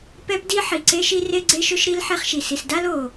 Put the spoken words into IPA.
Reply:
p ɛ˦ p d i˦ ħ i˨ ǀ e˧ ʃ i˧ r e˧ ɡ͡ǀ e˧ ʃ ɵ˧ ʃ ɾ i˧ l ħ e˧ χ ʃ i˨ s i˨ s d a˦ l o˨

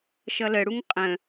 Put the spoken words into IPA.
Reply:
ʃ ʌ l ə ɽ u ŋ qʼ ə̃

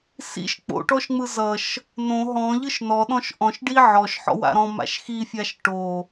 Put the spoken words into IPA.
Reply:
s ḭ ʃ k͡p o̰ ʈ ɔ ʃ ŋ͡m ɯ z ʌ ʃ | n õ ɦ ɔ̃ ʎ ɯ ʃ n ɔ ɗ ɔ̃ ʃ ʔ ɔ̃ ʃ ɖ i ʕ ɔ ʃ ħ ɔ̰ w a̰ ɾ ɔ̃ m a̰ ʃ x i fʲ a ʃ ʈ o

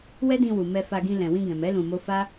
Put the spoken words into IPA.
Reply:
w ɛ˦ d ĩ˧ w u˨ m ɛ˧ f a˧ ɡ ĩ˧ l ɛ̃˨ w ĩ˧ ɡ ɛ̃˨ m ɛ˨˦ l ũ˧ m o˦ f a˦

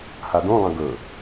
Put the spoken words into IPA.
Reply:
h a d õ lˠ ɐ̃ ɡ ɵ

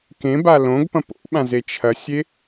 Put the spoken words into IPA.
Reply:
k ẽ b a l õ ɡ p ɐ̃ p o̰ ɓ ã z e t͡ʃʰ ɐ sʲ e

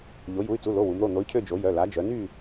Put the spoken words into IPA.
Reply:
ʎ o˩˧ j u˩˧˩ y̯ t͡s u˩˧˩ l o˩˧˩ w u˩˧ m ɾ o˩˧˩ n̪ o˨˥ y̯ cʰ ø˦˨ d͡ʒ o˩˧ j œ˩˧˩ l a˩˧ d͡ʒ œ˩˧ n y˦˨

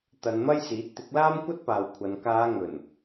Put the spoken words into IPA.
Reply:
t̪ ɐ˨˧ n m ɐ˥ j s iː˨˥ t̚ t̪ ɪ˨˥ k̚ l aː˥ m kʷ ɐ˥ t̚ p aː˨ w kʷʰ ɐ˨˧ n k aː˨˧ ŋ ɵ˨˩ n

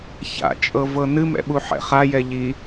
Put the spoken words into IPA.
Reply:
ç a̰ t͡ʃʼ ɤ v ɤ n ɨ m ɛ̰ ɓ u ħ ɛ̰ χ a j ɛ ʎ i

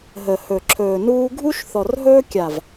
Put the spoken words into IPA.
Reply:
ɦ ə˨ h ɵ˨ ǁʰ ɵː˨ n uː˦ ɡʱ u˦ ʃ θ ɔ˨ r ɦ ɵː˦ kʲ a˨ v

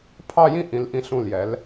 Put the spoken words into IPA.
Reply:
pʰ ɑ˥˧ j ĩ˥˧ ʔ ĩ˩˧ l ʔ ĩ˧ ɬ ũ˧˩ l j ɛ˩˧ l

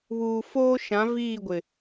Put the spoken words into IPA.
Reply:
β uː˨ f oː˦ ʃ ã˨˦ v iː˦˨ ɡʷ ɪ˨

